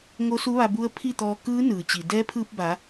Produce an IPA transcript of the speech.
ŋo˧˥su˧˥ ʋa˧bu˧˥ə̯ pʰi˥˨t̪ɔː˧ kɯː˧˥ nɯː˩t͡ɕi˩ dɛː˧˥pʰɯː˧p̚ ba˩˧

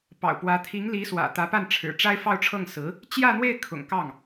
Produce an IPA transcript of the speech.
pɑ̰˨˩ʊ̯pwä˧˥ t̪ʰi˧˥ŋli˧˥swä̰˨˩ t̪ä˧˥ pa˥˩nʈ͡ʂʰɻ̩˨˩ ʈ͡ʂa˥ɪ̯fɑ˥˧ʊ̯ʈ͡ʂʰɤ˥˩ŋ sɹ̩˧˥ | t͡ɕjä˥˧n̪we˥˩ɪ̯ kʰʊ̰˨˩ŋkɑ˥˩ŋ

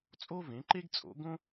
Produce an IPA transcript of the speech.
t͡sʼo˥vẽ˩˥ǃe˥ɡ t͡sʼo̰˩˥ ɡõ˥

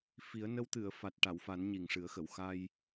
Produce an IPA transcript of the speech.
fi˨˩˦ə̯nə˧˥wt̪ɨ˨˩˨ə̯ fa˨˩t̚ʈa˨˩˨wfa˨˩˦n ɲi˨˩ŋʂɨ˨˩˦ə̯xə˨˩˨w xa˧j

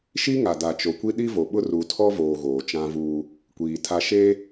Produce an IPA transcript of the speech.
ʃi˦ŋa˨ da˨t͡ʃo˨kʷi˦ ɗi˦vo˨ɓʊ˦ ru˨tʰɔ˦voː˨ ɣoː˨t͡ʃã˦vuː˦ | kʷiː˨tʰa˦ ʃe˦

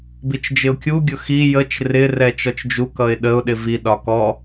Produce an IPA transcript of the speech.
bit͡ʃd͡ʒɪʊ̯kʲu ɡʲʊxi jət͡ʃ rɪ rɛt͡ʃɔt͡ʃd͡ʒu kʌɪ̯ɗəʊ̯ ɗɪvi ɗɒkɔ

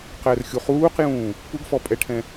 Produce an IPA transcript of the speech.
qɛrxʲuχuːqjũː | puɡfɔ pʼɛʈʰɛ̃

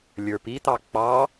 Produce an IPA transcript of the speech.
lʲə˞pit̪ɑ k͡pɑ

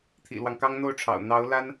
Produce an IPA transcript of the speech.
t̪ʰḭ˨˩lwɑ˦ŋkɑ˥ŋ n̪o˥˩ʊ̯ʈ͡ʂʰɑ̰˨˩ʊ̯ n̪ɑ˧˥ʊ̯la˥n

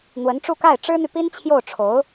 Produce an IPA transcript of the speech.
n̪wə˧˥nʈ͡ʂu˥˧ka˥˩ɪ̯ ʈ͡ʂɻ̩˥n̪y˨pi˥nt͡ɕʰjo˥˩ʊ̯ ʈ͡ʂʰo˧˥ʊ̯

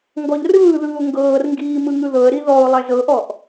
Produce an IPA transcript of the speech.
ŋɡɔʎrɯːðɯːʊ̯ ŋɡɤːrŋɡiː mɯŋɯðɤə̯ɾi ðɔʊ̯ lˠɛzɤʔɔʔ

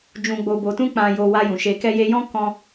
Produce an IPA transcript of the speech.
d͡ʒũ˨ɡ͡bo˨bo˨tũ˧ k͡pã˧jo˧ wa˧jũ˨ʃe˧ kɛ˧je˧jɔ̃˦ kɔ̃˦

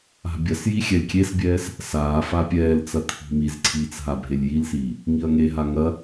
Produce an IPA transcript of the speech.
a̤bʲɐsji xʲɛlʲkʲesbʲɛːs | saːfa pʲɛːlt͡sɐ t̪ʰi̤mizǀʰiːt͡s ɦabʱelʲjilsiː | ŋiɐ̯ŋeɦa ŋɐ

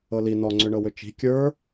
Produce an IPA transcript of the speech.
ɤli nɔŋ͡ǀʏɳɤwʏ t͡ʃi̤ kʲə˞

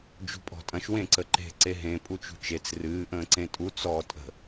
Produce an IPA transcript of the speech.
d͡ʒṳpʼɔ̤tʼɐ̃ʃ wẽǀəǃe̤ ǀeɦẽ pʼut͡ʃṳt͡ʃet͡s rɨː ʔə̃ːǀẽtʼu t͡sɔːtʼə̤

